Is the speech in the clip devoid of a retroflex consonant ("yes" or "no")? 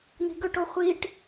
no